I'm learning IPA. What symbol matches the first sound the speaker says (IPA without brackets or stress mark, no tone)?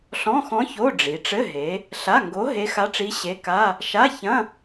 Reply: ɬ